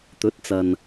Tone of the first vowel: rising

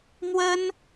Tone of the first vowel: high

